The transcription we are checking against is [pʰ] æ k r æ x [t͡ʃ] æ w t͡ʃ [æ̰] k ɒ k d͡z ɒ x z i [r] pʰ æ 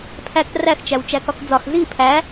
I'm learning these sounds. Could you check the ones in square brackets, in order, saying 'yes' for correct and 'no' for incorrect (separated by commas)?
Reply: yes, yes, no, no